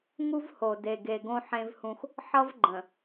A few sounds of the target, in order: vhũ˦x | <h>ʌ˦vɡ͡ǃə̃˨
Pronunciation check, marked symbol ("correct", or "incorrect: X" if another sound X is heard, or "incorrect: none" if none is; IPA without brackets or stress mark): incorrect: ħ